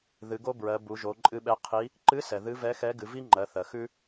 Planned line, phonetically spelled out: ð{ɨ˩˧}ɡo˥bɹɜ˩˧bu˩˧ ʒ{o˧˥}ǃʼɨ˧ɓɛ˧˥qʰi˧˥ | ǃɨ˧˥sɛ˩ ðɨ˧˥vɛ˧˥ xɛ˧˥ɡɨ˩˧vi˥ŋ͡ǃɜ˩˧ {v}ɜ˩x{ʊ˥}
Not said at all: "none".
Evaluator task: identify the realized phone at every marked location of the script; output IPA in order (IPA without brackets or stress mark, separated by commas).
ɨ˩˧, o˩˧, θ, ʉ˥